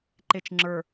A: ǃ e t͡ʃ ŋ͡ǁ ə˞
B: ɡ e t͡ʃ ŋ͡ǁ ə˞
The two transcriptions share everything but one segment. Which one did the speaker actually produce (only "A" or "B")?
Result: A